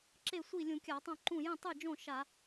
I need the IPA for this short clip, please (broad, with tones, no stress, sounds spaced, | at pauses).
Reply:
ǁ e˥˩ sʷ i˥˩ lʲ ũ˧˩˧ kʲ a˧˩˧ tˤ õ˥˩ ǃ ũ˥˩ j ĩ˥˩ tˤ ɨ˥˩ d͡ʒ õ˥˩ ʃ a˧˩˧